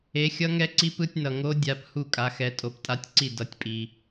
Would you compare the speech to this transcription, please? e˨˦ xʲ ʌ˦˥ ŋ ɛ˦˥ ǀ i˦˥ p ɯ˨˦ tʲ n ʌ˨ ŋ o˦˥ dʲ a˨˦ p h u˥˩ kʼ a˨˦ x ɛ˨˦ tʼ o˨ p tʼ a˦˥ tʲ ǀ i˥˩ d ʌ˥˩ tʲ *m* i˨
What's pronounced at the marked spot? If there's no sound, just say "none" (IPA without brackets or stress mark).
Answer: pʼ